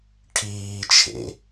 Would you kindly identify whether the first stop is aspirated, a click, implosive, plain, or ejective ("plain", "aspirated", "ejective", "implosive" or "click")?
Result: aspirated